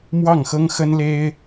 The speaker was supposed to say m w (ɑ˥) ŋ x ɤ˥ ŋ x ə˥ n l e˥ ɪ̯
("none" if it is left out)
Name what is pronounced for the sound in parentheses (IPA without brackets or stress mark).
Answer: ɑ˥˩